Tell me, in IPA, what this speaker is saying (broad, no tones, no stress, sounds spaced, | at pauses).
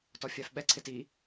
t ɔ fʲ a f ɓ ɛ ǀʰ ɪ t i